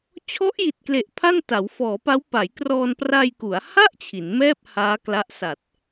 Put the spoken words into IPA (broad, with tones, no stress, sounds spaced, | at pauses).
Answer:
t͡ɕʰ ɔ˦˥ ʔ j i˨˩ t̚ k l e˨˩ ʔ pʰ a˥˩ n t a˩˦ w f ɔː˩˦ p a˦˥ w p a˩˦ j k r ɔː˧ n p r a˧ j k u˩˦ a̯ h a˥˩ ʔ t͡ɕʰ i˩˦ n m ɛː˥˩ p̚ h aː˦˥ k l a˦˥ ʔ s a˨˩ t̚